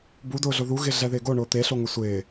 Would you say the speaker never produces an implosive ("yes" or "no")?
yes